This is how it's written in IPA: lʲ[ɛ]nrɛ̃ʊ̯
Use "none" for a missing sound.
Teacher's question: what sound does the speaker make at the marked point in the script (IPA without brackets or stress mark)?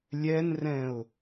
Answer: ɛ